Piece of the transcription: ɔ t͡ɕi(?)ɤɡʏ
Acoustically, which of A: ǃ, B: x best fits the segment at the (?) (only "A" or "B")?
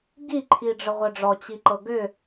A